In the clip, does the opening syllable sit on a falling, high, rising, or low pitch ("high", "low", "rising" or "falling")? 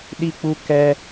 high